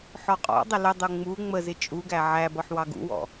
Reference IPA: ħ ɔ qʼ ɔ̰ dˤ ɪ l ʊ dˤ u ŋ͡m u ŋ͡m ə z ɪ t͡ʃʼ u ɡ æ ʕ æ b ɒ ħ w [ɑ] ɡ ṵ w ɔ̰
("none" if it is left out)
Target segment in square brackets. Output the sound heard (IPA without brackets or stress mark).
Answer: ɑ